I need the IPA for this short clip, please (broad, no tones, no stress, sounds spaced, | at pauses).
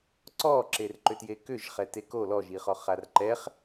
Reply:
ǀ ɔ ǁ e r ǃ ʏ t j e k ʏ ʒ χ ɛ t e k o l ɔ ʒ i χ ɔ χ a r ǃ ɛ χ